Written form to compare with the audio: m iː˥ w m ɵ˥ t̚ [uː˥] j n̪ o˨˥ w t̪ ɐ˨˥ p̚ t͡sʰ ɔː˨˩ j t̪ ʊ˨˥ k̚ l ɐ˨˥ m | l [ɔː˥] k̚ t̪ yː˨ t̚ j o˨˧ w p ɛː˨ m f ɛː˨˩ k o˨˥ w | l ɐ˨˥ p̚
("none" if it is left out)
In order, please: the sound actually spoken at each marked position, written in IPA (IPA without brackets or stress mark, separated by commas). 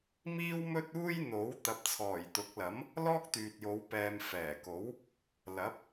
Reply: uː˥, ɔː˥